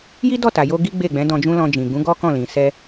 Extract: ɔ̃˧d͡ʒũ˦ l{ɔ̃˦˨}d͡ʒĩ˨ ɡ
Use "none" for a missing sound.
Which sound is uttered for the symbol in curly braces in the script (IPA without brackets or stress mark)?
ɔ̃˧